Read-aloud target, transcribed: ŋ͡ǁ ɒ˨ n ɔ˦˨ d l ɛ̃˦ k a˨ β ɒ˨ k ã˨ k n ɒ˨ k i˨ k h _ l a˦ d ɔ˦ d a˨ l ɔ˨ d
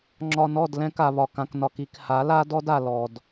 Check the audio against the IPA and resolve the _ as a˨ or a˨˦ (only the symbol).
a˨˦